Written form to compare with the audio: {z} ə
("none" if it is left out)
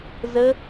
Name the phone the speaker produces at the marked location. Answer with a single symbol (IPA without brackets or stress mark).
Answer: z